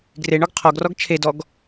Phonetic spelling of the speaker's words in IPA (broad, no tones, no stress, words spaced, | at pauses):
ɡreɳɔɡ qʰɔɡrɔɡ t͡ʃʰedɔɡ